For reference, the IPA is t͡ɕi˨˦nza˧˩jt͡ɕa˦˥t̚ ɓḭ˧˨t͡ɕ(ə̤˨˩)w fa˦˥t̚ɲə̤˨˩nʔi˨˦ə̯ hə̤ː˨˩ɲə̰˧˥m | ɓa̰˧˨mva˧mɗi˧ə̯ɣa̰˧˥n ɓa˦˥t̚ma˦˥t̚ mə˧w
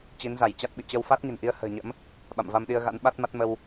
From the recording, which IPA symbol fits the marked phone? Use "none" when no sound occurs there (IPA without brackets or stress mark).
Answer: ə˧